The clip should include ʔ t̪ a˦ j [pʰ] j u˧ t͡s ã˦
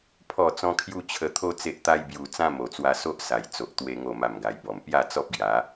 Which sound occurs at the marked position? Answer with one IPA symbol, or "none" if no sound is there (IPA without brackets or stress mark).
b